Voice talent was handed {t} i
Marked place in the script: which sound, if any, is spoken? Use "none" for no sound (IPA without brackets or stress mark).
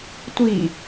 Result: tʷ